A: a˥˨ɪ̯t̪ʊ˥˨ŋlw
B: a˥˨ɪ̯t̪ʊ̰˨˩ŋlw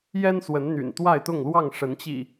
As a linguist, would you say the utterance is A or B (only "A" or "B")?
A